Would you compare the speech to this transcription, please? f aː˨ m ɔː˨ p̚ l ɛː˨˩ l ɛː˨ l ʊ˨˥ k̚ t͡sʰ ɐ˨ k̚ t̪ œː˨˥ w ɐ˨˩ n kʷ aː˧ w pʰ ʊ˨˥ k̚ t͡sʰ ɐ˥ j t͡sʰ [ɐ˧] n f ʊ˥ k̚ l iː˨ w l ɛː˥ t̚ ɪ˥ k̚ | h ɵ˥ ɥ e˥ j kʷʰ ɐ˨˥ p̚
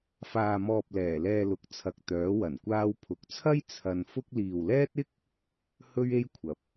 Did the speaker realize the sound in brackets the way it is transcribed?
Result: yes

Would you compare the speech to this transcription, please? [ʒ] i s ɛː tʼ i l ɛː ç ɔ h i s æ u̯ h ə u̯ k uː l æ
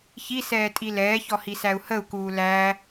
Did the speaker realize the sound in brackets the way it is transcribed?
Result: no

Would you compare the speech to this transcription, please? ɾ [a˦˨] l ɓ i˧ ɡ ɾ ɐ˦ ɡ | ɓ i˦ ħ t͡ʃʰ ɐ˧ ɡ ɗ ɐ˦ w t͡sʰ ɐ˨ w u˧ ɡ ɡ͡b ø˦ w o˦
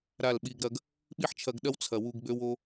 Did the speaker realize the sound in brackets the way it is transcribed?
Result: yes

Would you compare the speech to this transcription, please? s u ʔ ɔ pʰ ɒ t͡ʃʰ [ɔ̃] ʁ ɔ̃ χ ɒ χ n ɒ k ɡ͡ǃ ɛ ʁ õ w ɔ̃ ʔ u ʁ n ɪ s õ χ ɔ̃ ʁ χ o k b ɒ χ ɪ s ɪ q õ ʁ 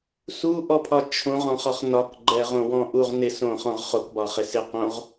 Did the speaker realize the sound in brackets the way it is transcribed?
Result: no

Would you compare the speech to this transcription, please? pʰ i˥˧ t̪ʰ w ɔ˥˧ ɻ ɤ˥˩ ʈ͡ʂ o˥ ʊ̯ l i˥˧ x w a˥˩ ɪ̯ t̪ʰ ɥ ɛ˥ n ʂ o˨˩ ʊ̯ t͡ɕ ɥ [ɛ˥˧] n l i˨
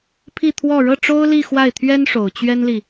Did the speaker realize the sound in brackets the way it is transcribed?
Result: no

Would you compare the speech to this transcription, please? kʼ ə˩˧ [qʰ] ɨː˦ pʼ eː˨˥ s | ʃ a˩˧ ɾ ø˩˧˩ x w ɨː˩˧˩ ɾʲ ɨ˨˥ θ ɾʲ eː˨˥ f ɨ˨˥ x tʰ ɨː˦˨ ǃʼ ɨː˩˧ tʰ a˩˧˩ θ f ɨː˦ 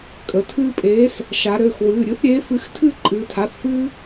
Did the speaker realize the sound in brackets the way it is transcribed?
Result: no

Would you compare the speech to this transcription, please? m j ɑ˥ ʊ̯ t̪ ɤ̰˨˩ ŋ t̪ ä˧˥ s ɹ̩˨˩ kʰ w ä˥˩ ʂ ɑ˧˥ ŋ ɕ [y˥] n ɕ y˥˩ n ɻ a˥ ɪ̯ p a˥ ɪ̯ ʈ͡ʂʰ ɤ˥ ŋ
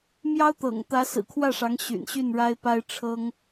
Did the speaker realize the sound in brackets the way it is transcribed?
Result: no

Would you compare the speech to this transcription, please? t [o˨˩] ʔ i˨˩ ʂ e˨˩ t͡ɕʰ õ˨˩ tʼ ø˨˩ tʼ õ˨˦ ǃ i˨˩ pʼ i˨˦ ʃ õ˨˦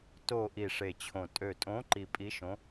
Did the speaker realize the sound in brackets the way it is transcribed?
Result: yes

